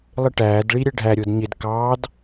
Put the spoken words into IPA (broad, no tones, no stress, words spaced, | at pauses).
lˠɪʈæːdɭi ɾʲɛɖʱæɾʲʊːd ɲɪd kɑːd